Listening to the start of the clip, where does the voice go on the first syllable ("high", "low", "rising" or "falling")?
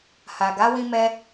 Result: low